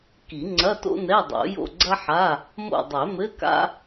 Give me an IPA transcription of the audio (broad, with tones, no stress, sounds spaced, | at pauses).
k i˨˩˦ ŋ͡ǀ ɐ˧˥˧ t o̰˥ n ɛ˧˥˧ dˤ o̰˨˩˦ j o̰˦˨ ɡ͡ǀ ɐ˥ ħ a˧˥˧ | m o̰˦˨ dˤ ɛ˨˩˦ m ɘ˧˥˧ k a̰˥